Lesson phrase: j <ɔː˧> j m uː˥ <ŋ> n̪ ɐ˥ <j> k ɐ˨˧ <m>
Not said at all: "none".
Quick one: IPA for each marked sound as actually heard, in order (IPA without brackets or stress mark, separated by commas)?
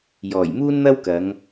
ɔː˨˩, n, w, ŋ